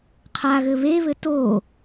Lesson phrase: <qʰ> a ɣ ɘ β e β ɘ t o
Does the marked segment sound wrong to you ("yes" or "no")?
no